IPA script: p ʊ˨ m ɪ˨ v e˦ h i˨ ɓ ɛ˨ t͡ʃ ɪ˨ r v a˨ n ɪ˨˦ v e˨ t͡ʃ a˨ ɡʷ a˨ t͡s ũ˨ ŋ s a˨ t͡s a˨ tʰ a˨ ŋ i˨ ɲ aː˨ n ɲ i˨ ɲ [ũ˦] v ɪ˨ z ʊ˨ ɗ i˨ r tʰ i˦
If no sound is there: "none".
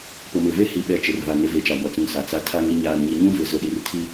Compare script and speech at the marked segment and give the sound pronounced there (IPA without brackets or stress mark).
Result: ũ˦